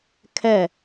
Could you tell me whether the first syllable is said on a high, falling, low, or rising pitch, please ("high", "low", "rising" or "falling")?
falling